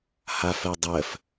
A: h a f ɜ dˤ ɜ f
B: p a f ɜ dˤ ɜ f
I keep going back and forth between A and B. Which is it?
A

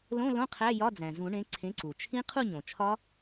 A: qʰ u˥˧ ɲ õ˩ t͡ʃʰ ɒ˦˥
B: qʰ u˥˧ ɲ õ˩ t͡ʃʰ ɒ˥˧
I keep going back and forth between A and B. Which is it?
A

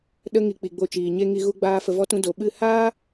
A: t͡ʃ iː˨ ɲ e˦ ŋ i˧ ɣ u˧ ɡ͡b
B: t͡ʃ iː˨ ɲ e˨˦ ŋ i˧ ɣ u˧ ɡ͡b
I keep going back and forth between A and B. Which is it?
A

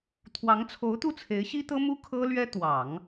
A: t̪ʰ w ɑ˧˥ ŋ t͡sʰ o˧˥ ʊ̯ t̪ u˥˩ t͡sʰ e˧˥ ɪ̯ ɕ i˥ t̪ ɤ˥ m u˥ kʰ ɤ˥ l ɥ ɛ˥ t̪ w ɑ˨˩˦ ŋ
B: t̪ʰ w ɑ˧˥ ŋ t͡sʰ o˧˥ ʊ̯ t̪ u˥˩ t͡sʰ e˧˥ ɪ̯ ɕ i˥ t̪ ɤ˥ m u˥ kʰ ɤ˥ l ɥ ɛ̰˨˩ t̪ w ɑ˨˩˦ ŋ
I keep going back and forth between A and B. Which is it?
A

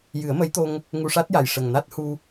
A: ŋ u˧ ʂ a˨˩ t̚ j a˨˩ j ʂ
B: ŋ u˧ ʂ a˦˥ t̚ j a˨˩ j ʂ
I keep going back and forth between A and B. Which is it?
B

